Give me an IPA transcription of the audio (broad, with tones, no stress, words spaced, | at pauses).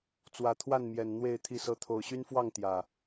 t͡swä˨˩t̪ʰwa˥˨nmjɛ˨˩n n̪we˥˨ɪ̯ t̪ʰi˥˨sɤ˦ t̪ʰo˨˩ʊ̯ɕy˦nfwɑ˥˨ŋ t̪jä˨˩